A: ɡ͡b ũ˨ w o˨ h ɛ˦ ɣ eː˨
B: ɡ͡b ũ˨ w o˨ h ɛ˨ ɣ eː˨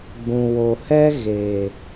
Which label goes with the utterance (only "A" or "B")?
A